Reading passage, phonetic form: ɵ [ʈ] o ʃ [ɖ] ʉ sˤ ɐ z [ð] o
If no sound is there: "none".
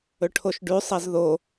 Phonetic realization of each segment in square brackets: ʈʰ, ɖ, ð

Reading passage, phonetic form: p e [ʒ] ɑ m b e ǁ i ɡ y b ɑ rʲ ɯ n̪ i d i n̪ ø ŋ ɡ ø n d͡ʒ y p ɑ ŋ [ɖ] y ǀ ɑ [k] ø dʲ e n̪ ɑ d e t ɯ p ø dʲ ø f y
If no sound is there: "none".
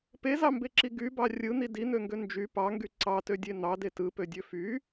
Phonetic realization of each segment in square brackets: z, ɡ, t

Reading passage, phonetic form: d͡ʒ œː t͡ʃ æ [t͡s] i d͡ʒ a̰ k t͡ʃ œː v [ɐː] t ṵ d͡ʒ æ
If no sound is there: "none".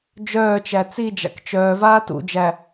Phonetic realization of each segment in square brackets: t͡s, aː

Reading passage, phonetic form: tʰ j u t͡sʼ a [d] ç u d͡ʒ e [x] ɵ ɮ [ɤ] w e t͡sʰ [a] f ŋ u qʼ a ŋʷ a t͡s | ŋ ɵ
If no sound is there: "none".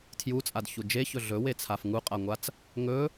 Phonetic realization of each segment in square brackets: d, ç, ɵ, a

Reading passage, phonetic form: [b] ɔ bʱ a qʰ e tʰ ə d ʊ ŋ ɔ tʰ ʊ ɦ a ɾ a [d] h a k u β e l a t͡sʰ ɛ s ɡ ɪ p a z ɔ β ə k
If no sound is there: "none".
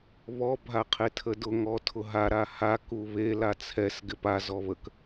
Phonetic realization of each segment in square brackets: β, none

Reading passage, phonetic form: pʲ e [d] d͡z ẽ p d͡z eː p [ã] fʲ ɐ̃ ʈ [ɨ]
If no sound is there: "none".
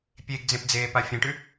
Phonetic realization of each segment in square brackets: ɡ, a, ʉ

